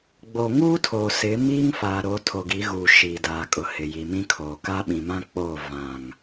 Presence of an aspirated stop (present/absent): present